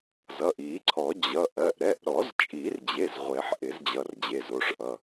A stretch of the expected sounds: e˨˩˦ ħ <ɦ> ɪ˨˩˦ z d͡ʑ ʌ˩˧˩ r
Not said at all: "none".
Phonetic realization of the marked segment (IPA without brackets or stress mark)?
ʔ